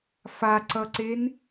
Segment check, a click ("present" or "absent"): present